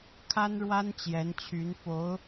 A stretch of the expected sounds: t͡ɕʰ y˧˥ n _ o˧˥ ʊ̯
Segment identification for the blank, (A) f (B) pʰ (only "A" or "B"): A